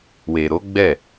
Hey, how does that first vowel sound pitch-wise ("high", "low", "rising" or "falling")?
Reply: low